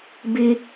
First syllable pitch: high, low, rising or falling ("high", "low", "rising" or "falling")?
high